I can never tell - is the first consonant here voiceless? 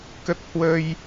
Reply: yes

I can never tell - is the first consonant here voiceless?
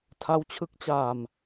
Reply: yes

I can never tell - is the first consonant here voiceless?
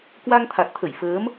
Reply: yes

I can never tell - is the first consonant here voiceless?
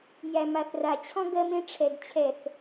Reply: no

